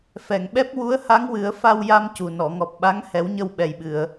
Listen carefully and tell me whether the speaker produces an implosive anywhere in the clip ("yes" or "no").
yes